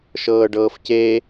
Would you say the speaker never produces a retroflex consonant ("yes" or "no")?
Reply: no